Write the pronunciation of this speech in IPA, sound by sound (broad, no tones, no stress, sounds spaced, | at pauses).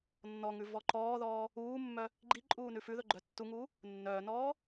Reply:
nː ɔ ŋ ʉ v ɔ ǃ ɔː ð ɔː | uː mː œ | ɡ͡ǃ i ǃʼ uː n ʉ f ʉ ð ɵ ɡ͡ǃ œ tː u ŋ uː | nː œː n ɔː